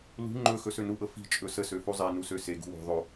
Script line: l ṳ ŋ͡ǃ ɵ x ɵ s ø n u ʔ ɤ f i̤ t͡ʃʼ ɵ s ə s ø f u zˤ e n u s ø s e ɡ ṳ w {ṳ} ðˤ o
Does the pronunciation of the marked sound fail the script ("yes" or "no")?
yes